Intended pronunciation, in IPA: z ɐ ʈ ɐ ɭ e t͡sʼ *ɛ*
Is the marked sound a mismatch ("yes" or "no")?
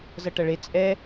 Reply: no